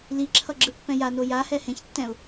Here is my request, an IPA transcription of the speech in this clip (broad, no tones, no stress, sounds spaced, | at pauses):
l i ǁʰ ʌ ɡ͡ǁ ɯ pː ɛ̃ j a n o j a h ɛ h ẽ ç tː ɛ̃ ʊ̯